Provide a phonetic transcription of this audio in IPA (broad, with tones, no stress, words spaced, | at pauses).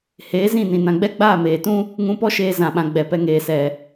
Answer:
heː˨˦zĩ˦˨nĩ˨ nã˨ɡ͡bɛ˦ɡ͡baː˦˨ meː˨tũ˦ | ŋũ˧pɔ˦ʃeː˧ zã˨ɓã˨ ɡ͡bɛ˨pɛ˧ ŋeː˨sɛ˨